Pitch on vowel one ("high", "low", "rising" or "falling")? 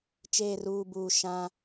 low